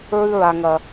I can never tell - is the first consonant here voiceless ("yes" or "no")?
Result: no